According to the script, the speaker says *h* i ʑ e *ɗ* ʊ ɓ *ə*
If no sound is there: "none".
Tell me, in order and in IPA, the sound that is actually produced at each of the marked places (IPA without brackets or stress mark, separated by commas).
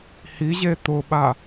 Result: h, t̪, a